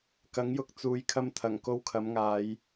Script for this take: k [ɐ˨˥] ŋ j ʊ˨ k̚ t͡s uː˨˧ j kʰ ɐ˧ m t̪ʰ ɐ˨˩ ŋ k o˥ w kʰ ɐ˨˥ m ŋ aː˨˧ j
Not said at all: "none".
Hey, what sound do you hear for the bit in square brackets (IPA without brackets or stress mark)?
ɐ˨˥